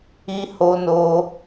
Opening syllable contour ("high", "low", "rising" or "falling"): high